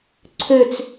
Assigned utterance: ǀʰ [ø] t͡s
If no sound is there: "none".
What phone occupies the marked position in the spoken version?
ø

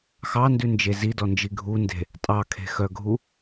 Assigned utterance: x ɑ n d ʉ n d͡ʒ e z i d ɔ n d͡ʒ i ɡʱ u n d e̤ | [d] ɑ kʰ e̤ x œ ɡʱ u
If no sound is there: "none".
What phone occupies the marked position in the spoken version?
tʼ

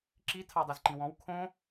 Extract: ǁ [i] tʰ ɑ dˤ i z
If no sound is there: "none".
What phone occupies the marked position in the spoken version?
i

